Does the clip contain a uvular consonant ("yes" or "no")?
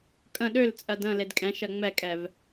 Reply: no